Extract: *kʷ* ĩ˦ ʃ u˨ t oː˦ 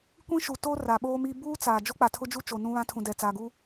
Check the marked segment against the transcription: correct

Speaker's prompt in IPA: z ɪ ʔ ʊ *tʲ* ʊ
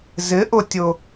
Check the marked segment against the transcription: correct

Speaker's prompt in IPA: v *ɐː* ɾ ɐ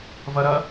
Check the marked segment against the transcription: incorrect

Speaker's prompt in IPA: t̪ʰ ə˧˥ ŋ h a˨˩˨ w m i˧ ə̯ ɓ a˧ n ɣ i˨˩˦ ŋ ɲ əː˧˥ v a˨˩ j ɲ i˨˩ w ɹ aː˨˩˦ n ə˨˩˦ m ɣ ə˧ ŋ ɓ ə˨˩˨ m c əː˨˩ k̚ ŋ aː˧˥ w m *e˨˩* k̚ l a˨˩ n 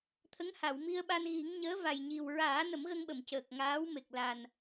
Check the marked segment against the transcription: correct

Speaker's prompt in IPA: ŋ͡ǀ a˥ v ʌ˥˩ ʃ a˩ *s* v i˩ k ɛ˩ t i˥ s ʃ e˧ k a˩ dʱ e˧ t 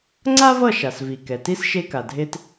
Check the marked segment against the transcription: correct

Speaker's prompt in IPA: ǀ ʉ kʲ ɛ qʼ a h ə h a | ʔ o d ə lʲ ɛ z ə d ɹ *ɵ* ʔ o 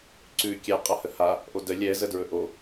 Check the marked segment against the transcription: correct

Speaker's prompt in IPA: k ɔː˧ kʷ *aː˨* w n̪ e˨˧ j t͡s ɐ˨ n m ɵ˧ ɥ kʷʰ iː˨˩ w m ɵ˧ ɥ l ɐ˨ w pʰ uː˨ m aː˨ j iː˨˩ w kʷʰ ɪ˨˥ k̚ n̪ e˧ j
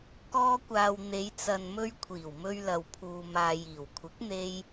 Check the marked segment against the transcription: correct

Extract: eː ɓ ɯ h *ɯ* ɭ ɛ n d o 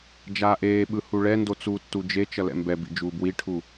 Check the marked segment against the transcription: incorrect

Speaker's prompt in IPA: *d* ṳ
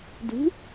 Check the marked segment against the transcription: correct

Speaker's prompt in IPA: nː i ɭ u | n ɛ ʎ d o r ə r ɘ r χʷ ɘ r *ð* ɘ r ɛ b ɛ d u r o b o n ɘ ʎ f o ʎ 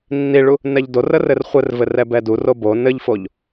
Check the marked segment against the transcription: incorrect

